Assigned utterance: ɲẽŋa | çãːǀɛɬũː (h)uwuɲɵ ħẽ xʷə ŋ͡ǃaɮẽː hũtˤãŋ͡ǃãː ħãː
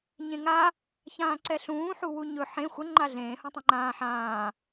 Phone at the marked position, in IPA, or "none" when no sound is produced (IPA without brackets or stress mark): ħ